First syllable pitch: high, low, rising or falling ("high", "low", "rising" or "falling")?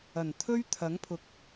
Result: low